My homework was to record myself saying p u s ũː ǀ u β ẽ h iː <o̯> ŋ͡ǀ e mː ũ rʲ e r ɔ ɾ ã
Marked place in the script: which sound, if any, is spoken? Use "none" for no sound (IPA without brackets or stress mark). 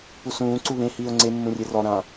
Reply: o̯